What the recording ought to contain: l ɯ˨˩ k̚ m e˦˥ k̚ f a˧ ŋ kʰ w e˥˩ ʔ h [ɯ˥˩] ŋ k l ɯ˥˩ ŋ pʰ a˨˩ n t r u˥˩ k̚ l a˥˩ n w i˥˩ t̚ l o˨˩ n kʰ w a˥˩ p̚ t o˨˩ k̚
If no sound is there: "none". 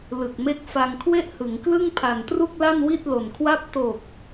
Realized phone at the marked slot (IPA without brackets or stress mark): ɯ˩˦